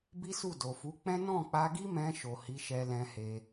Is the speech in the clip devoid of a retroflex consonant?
yes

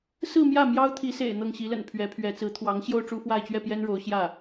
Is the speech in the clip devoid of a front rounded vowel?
yes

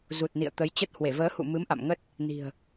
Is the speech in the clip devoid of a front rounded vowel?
yes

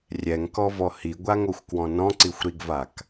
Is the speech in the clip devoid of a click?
no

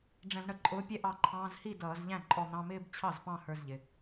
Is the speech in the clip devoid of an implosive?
yes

